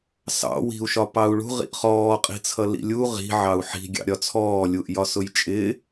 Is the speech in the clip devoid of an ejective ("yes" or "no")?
no